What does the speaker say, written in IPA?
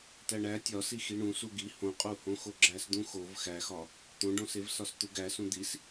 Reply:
t æ ɳ æ tʲ ɒ s i x i ɳ ũ s u ɡ i h õ qʼ u h õ x o ɡ͡ǁ æ s d̪ ũ x o v x æ x ɒ | t̪ õ ɖ õ s e v s ɒ s t̪ u ɡ æ s ũ d̪ i s

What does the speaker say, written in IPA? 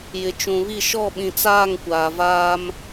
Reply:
j ɪ˨ t͡ʃ ũ˨ β i˦˨ ʃ ɔ˦˨ ɓ ĩ˨ t͡s aː˦˨ ŋ kʷ aː˨ v aː˦ m

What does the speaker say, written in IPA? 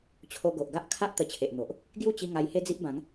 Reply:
t͡ɕʰ o˧ ɡ o˨ ʔ ɡ a˦ ʔ kʰ a˦ ʔ t̪ ə˧ t͡ɕʰ e˨ ʔ n̪ o˨ ʔ | ɡ j u˥˧ t͡ɕ i˧ ŋ a˧ j h e˦ d͡z i˦ ʔ b ã˨˦ ŋ

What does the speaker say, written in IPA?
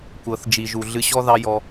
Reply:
kʷ ɤ˨ θ d͡ʒ i˨ ʒ u˨ ɮ ɨ˧ ɕ ɔ˦ ð ɑ˦ j ɔ˧

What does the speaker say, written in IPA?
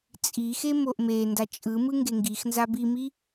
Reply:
t͡sʼ i x e m o ʔ m e n d a t͡ʃʼ ɯ m ɯ ŋ ɡ e ŋ ɡ i x n z a b i m i

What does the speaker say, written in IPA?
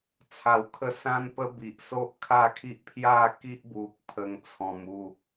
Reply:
t͡sʰ a˨˩ w kʰ ə˧ s ã˦ n p ə˦ b i˨ ʔ s o˦ ʔ kʰ a˥˧ kʰ i˦ ʔ pʰ j a˥˧ k i˦ ʔ b u˨ k̚ pʰ ə˧ ŋ t͡sʰ ɔ̃˧ m u˥˧

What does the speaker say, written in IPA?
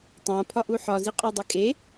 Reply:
tˤ ã pʰ ɒ ʔ u ħ ɒ z i qʼ a dˤ i kʼ e

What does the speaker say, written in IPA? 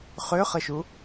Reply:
χ ø χ ə ʃ u

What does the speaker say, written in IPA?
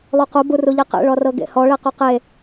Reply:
lˠ u q u b u r u ʎ e q ḛ ɭ ɔ r ɤ ɡ ḛ h ɔ ɭ e q u q e

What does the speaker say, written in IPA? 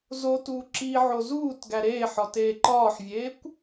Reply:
z o t uː ǁ i ʕ o z uː t ɡ æ ɾ eː ħ ɒ t eː ǃ ɒː ħ vʲ eː kʷ

